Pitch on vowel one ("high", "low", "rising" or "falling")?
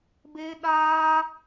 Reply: high